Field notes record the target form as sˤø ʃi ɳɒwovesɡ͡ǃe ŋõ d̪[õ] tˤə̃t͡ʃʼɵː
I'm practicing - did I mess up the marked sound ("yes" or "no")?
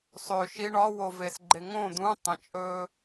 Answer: yes